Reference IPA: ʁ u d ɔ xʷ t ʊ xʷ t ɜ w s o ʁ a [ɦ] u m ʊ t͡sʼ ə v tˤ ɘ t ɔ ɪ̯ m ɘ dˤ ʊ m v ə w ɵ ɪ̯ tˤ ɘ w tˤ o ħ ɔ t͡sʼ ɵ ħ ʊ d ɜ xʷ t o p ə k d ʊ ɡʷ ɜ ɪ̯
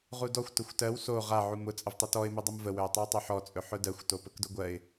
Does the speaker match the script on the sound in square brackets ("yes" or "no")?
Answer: no